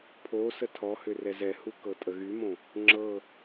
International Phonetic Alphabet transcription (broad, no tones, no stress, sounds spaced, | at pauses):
pʰ o s ə tʰ ɔ h ʏ r ɛ z ɛ h u k ɤ tʼ ə ɣ y m õ | ŋ͡ǁ ɤ